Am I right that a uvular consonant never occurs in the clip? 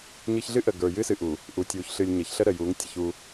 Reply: yes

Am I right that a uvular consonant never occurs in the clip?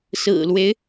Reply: yes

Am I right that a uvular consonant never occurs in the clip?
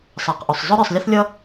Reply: no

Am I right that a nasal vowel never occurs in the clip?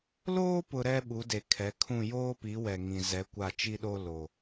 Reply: no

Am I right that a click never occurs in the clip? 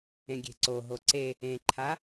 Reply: no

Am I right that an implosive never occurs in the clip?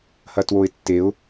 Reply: yes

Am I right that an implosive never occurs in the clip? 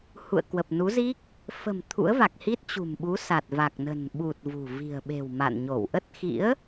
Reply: no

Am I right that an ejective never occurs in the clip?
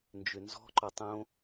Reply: yes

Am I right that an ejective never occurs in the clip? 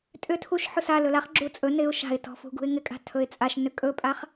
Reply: no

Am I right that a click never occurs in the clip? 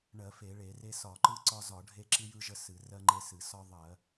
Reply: no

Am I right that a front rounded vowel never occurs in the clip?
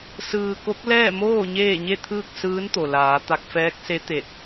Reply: yes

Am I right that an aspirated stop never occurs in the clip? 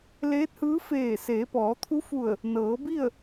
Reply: no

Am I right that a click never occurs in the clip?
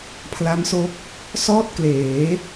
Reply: yes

